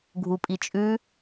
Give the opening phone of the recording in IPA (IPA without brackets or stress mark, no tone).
ɡʱ